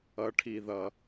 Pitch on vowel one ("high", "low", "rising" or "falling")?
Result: high